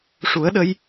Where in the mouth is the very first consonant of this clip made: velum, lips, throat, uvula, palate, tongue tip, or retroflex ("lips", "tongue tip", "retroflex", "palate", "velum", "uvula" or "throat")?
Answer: retroflex